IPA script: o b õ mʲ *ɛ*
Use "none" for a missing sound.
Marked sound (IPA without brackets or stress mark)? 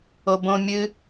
ɨ